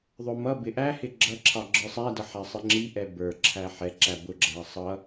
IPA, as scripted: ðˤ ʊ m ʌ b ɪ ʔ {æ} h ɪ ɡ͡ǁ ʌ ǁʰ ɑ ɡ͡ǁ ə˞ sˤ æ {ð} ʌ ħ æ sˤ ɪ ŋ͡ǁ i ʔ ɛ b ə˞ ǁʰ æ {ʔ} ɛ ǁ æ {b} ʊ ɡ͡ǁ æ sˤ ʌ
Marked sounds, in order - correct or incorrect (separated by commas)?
correct, incorrect, incorrect, correct